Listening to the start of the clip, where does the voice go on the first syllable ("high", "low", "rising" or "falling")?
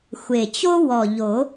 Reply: low